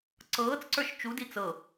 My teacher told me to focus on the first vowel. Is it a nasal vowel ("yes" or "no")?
no